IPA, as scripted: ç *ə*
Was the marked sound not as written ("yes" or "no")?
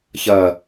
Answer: yes